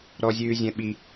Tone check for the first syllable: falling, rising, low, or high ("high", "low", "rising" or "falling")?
high